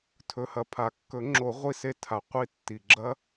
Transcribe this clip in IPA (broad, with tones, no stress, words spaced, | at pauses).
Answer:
tʰɵ˨hɐ˨pʰa˨˩˦ kːɵ˨˩˦ŋ͡ǁo˨˩˦ ʁʷi˦se˦tʰa˨˩˦ qʷi˦tːi˨ ɡ͡ǁɐ˦